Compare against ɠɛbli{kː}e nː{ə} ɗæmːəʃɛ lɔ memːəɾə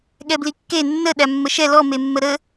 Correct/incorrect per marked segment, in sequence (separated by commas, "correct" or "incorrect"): correct, correct